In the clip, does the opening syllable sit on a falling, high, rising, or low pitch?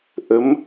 rising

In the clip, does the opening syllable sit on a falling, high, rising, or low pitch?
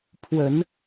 low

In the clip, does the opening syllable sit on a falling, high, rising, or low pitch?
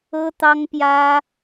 high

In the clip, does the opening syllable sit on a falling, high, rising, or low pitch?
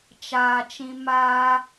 low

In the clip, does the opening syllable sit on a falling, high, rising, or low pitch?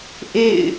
falling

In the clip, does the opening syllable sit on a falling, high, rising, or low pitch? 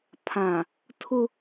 low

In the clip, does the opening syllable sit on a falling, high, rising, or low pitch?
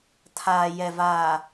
low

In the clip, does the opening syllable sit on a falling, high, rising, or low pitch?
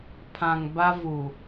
low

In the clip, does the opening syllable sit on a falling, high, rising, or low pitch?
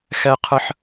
high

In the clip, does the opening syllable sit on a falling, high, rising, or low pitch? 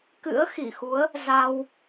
rising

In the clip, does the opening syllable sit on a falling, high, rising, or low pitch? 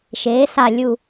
rising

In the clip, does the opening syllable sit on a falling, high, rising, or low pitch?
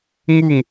falling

